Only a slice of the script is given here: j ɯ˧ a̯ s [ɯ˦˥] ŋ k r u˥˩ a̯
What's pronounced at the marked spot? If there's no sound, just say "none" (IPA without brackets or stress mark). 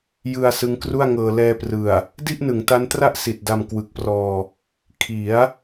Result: ɯ˦˥